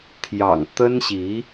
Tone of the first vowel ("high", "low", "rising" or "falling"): low